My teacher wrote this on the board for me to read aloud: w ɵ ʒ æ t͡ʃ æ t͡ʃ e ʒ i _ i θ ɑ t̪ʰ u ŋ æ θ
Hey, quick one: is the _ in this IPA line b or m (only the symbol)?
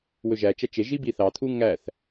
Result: b